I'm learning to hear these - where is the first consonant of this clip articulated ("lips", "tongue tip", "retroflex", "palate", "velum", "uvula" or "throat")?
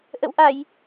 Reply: throat